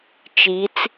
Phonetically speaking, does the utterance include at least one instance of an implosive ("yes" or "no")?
no